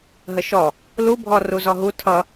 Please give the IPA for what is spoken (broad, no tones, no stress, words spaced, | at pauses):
ɦəʃɔ | lubʱɔ ruzɔɦu tʰʌ